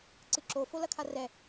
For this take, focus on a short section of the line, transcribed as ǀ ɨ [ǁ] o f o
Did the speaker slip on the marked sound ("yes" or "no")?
no